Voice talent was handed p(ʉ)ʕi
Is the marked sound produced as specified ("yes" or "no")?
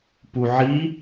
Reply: no